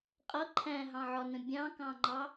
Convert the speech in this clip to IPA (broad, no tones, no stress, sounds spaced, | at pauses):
qʼ ʌ ǃʰ æ̃ ɦ ɑ̃ ʕ ɒ n ə̃ bʲ ɑ̃ k ɑ̃ ŋ͡ǃ ɑ